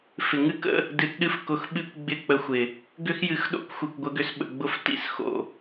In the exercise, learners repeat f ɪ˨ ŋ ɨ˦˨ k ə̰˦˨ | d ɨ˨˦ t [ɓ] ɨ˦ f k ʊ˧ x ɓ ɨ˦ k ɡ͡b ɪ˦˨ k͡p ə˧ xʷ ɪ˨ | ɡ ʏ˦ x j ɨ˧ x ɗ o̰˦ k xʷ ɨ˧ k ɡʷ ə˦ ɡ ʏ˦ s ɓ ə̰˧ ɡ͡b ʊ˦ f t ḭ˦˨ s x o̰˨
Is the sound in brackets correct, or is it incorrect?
incorrect